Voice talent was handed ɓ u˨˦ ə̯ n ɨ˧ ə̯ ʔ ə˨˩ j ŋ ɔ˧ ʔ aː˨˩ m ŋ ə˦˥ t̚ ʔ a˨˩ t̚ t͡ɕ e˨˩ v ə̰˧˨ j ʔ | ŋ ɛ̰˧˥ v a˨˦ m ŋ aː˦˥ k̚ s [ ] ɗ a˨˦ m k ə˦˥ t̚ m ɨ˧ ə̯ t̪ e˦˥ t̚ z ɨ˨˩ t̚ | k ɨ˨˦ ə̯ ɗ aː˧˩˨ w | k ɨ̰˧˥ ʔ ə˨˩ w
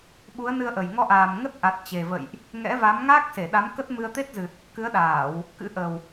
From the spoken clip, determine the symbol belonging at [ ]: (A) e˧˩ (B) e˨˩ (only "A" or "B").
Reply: A